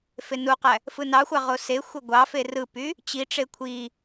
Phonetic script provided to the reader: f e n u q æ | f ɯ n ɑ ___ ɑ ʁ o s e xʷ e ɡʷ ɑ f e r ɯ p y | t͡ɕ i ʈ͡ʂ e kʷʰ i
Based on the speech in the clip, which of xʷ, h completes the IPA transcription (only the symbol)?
xʷ